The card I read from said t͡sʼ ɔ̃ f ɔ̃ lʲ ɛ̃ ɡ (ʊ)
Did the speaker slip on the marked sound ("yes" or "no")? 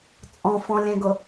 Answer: no